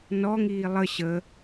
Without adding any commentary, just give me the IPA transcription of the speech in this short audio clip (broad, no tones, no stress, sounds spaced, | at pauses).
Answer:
n ɔ ŋ iː lˠ ə ɕ ə